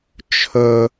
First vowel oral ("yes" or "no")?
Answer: yes